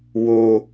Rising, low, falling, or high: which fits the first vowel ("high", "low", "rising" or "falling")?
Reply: low